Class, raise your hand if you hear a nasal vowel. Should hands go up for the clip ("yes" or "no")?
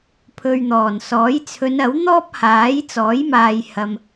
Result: no